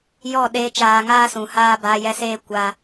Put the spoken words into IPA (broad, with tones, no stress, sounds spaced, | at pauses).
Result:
j ɔ˦˨ ɗ eː˦ t͡ʃ aː˧ ŋ aː˦ s ũ˨ h aː˦ b aː˧ j ɛ˧ s eː˦ kʷ a˧